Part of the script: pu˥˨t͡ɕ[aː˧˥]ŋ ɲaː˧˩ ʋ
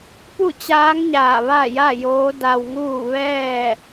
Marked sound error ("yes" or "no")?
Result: no